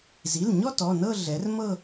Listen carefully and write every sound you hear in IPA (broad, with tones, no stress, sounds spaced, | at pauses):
z i˩˧˩ l ɲ ɔ˥˧ t ɔ˩˧˩ n ɤ˥˧ ɮ ɛ˩˥ r m ɤ˥˧